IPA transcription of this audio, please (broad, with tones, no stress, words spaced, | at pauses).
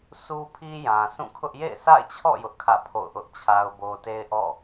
sʰu˦pʰi˦jã˨ sũ˦˨kʰʊ˦ʔ jḛ˦˨ɪ̯sʰa̰˦˨ɪ̯t͡ɕʰɔ̰˦˨ jʊ˦ʔkʰä̰˦˨ pʰo̰˦˨ʊ̯ ʔʊ˦ʔt͡ɕʰa˦ʊ̯bo˦ te˦ɪ̯ʔɔ̰˦˨